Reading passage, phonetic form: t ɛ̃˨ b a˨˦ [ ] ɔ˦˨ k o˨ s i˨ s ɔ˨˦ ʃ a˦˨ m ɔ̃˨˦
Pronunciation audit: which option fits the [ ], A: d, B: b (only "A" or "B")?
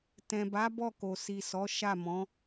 B